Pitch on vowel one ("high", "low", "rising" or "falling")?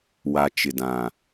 low